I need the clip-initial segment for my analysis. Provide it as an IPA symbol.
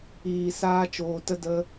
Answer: iː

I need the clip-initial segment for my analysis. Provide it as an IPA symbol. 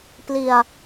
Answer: p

